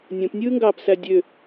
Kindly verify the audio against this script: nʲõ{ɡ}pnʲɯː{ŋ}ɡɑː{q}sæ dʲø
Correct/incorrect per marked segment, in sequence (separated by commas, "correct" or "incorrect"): incorrect, correct, incorrect